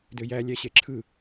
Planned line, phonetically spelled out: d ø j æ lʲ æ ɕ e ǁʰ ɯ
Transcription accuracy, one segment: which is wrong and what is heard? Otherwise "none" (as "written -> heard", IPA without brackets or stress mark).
none